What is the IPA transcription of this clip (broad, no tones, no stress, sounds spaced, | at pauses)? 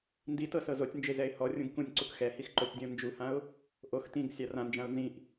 n d i t ɤ s ɤ z o tʲ n d͡ʒ e z ɛ ɪ̯ h ɔ rʲ ũ ɡ k ũ nʲ ǀ u k x ɛ h i x ǃ o tʲ dʲ ɔ̃ n d͡ʒ u h ã ʊ̯ | ʔ o x t ĩ ɡ sʲ a r ã n d͡ʒ ã ʊ̯ n z ĩ ʔ